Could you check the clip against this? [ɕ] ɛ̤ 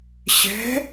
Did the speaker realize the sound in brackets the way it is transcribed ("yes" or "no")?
yes